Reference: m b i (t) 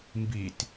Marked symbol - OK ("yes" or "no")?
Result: yes